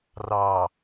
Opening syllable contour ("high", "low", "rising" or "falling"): low